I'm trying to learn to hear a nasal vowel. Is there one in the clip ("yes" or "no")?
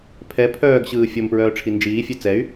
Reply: no